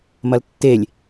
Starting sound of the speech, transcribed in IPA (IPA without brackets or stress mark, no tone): m